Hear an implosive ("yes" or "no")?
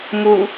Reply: no